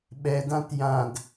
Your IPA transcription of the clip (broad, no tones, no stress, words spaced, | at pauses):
ɓɛdãt jãd